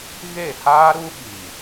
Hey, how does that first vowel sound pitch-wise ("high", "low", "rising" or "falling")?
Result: falling